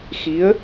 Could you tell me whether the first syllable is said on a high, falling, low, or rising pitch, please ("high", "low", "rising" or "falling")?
rising